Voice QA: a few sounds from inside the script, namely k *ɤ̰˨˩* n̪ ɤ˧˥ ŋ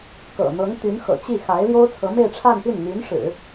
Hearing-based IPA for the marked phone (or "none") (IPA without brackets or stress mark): ɤ̰˨˩